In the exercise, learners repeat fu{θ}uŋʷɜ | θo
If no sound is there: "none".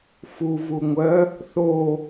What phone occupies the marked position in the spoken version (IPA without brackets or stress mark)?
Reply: v